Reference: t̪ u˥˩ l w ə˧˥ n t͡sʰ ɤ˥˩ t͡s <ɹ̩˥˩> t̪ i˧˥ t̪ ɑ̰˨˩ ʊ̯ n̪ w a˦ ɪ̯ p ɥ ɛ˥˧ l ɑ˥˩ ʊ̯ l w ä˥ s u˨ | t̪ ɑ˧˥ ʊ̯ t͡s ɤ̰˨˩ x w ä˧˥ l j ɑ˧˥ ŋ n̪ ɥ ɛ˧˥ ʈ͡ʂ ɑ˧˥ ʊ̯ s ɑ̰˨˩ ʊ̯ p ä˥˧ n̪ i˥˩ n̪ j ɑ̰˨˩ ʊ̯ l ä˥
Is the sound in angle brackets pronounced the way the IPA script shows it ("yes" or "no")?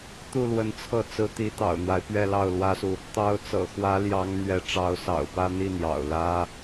no